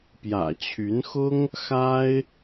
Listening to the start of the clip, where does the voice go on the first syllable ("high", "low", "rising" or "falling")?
low